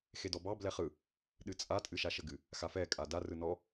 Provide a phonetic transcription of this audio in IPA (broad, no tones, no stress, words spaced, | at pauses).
xedɔbɑ blɛχɯ | ɗɨt͡sʼa tʼɨʃaʃəɡɨ | xafɛ kʼada rɯnɔ